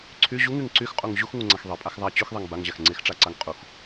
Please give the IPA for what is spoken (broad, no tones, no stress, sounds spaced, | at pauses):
ǀʰ y ʑ u ŋ y ŋ ǀ y x qʼ u ŋ ʑ u x ŋ u ŋ͡ǀ a x ðˤ e pʼ a x ðˤ a t͡ɕ y x ðˤ e ŋ b a ŋ ʑ a x ŋ͡ǀ e x ʈ͡ʂ a ǀ a ŋ qʼ u x